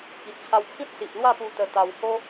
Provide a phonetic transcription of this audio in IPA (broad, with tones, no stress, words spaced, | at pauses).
ki˨ʔt͡ɕʰa˧wt͡sʰĩ˦t̚ si˨ʔlwa˥˧pu˧ t̪ə˧t̪a˧w ho˦